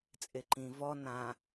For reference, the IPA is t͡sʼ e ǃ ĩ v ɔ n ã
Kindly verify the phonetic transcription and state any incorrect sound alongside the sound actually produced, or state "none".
none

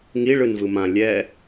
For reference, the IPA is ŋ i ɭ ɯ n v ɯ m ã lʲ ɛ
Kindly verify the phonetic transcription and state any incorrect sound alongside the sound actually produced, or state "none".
none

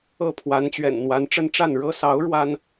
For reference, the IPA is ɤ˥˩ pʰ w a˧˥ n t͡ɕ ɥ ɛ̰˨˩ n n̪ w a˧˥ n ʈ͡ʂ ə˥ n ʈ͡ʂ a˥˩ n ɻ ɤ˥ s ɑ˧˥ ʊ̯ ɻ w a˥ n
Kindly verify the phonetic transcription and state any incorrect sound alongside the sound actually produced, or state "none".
none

